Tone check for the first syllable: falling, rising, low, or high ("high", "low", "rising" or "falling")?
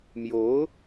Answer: rising